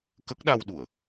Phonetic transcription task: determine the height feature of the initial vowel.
mid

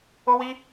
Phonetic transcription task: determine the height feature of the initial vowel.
mid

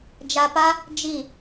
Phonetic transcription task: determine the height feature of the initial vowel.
low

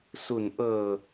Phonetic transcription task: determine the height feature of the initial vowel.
high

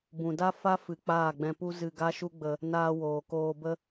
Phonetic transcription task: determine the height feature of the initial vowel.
high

